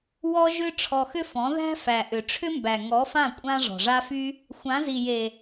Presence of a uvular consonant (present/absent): absent